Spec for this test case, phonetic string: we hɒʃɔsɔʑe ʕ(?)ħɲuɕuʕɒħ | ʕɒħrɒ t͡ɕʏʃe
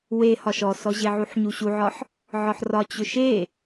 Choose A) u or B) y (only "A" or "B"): A